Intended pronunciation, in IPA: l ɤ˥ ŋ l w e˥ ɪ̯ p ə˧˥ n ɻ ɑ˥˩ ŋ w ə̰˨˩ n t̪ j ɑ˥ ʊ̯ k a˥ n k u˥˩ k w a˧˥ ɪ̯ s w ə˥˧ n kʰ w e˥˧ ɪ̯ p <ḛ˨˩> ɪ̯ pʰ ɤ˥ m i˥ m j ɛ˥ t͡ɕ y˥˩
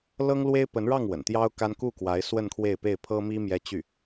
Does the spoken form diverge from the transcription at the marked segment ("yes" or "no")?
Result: yes